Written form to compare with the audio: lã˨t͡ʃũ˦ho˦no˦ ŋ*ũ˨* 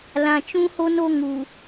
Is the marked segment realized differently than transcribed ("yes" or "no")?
yes